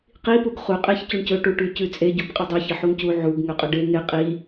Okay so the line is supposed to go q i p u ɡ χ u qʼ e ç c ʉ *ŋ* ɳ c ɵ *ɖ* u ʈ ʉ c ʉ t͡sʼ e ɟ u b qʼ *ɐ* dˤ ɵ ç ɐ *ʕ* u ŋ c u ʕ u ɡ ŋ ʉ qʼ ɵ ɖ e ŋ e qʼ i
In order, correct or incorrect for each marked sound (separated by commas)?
incorrect, incorrect, correct, incorrect